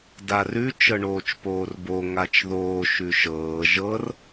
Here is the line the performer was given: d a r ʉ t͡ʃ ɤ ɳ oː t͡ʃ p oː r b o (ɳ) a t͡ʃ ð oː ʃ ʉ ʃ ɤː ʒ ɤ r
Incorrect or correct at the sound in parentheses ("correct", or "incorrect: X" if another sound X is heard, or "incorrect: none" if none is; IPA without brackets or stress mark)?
incorrect: ŋ